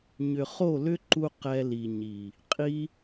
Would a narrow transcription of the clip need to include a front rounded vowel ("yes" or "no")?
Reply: yes